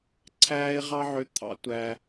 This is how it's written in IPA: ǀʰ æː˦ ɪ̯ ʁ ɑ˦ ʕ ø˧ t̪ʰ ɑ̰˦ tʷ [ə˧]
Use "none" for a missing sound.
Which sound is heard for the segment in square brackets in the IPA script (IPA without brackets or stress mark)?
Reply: æ˧